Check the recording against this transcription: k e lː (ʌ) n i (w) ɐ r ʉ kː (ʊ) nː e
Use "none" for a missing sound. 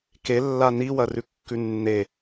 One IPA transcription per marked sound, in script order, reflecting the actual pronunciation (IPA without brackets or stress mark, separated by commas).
a, w, ʉ